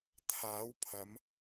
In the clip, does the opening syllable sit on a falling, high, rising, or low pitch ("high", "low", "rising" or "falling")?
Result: rising